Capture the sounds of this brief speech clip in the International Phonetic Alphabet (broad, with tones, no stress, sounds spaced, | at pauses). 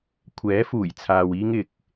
kʷʰ ɛː˨˥ f uː˨˩ j t͡sʰ aː˨ w iː˧ ŋ ɪ˨ k̚